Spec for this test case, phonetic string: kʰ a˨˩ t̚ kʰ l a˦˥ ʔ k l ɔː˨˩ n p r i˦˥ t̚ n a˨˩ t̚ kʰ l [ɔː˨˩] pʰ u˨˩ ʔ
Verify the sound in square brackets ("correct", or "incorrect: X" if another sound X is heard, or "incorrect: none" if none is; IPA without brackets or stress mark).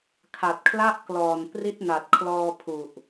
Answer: incorrect: ɔː˧